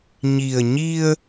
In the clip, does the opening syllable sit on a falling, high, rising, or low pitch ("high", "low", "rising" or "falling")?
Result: low